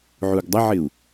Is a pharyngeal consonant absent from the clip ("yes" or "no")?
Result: no